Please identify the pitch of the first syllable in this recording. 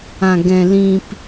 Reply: low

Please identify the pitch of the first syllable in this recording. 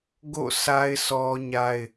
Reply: falling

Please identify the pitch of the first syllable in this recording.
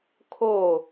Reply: falling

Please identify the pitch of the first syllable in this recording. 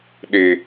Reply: high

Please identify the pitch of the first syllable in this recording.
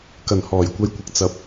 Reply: low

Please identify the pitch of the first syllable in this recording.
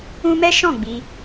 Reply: high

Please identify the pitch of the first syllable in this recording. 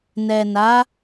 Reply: low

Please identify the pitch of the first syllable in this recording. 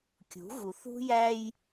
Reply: rising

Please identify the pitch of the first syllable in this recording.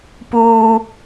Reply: high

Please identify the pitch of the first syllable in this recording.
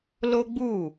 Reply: high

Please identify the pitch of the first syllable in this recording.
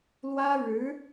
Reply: high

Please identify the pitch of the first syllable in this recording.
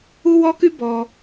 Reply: high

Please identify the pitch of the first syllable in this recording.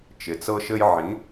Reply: low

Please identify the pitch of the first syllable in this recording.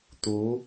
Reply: rising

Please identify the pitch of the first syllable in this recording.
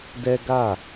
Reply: high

